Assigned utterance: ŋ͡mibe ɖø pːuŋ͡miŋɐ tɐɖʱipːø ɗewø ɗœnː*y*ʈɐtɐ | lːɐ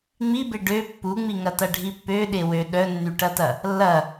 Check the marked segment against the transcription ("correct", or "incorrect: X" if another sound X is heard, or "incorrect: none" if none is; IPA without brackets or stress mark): correct